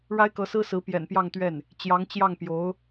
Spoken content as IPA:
ɻ a˥ ɪ̯ k ɤ˧˥ s ɹ̩˥ s ɹ̩˧˥ p j ɛ̰˨˩ n p j ɑ˥˧ ŋ t̪ ɥ ɛ˥˩ n | t͡ɕ j ɑ˧˥ ŋ t͡ɕ j ɑ˥˩ ŋ p j o˧˥ ʊ̯

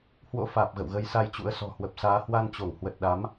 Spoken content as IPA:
h w o̰˧˥ f aː˨˩ p̚ ɣ ə̰˧˨ w ɣ ə˨˦ j s a˧ j t͡ɕ ṵ˧˥ ə̯ s ɔ̤˨˩ h w ə˨˩ p̚ s aː˨˦ h w a˧ n t͡ɕ o˧˩ ŋ h w ə˨˩ t̚ ɗ a˨˦ m

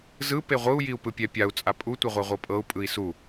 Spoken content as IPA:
z ɯ p e ʁʷ ɯ u̯ j i u̯ p ɯ pʲ ɛ pʲ a u̯ t͡sʼ a pʼ u tʷ e ʁʷ a ʁʷ ɤ pʼ ɤ u̯ pʼ ɯ i̯ s u

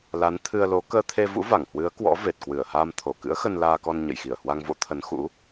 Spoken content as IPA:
l a˨˦ n t̪ʰ ɨ˧ ə̯ l o˨˦ k əː˧ t̪ʰ e˧ v ṵ˧˥ v a˧˩ ŋ h w ɨ˨˦ ə̯ k w ɔ̰˧˥ v e˨˩ t̚ k w ɨ˧˩ ə̯ h aː˧ m t̪ʰ o˧˩ k ɨ̰˧˥ ə̯ x ə˧ n l aː˧ k ɔ˧ n ɲ ə̰˧˨ j x i˧˩ ə̯ h w a˧ ŋ v o̰˧˥ t̪ʰ ə˨˦ n x ṵ˧˥

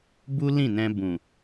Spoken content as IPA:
b u˦ l ĩ˦˨ n ɛ̃˧ b ũ˨

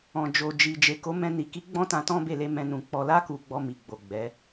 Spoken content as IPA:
ɔ̃˨ d͡ʒ o˨ d͡ʒ i˨ d͡ʒ e˨ k o˨˦ m ɛ̃˧ n i˨ k i˨˦ ɡ͡b ɔ̃˦ t ã˧ t ɔ̃˦ b e˦˨ l e˧ m ɛ̃˧ n ũ˨ k͡p ɔ˨ l a˧ k u˨ ɡ͡b ɔ˧ m i˨ ɡ͡b o˨ ɡ͡b ɛ˨˦

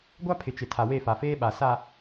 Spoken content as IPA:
ɡʷ a˦ pʰ ɪ˨ t͡ʃ ɪ˨ tʰ a˨ w e˦˨ f a˨ f eː˦ ɓ a˨ s a˨

